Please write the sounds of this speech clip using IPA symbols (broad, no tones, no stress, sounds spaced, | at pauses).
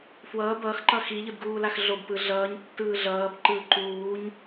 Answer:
f w ʌː b ʌː x ǃ ʌ x i ʎ ɯ d ɡ uː l a x ɮ o b p ɯ ɮ ʌː ɲ tː ɯː ɮ ʌː b ǃ ɯː ǃ uː ɲ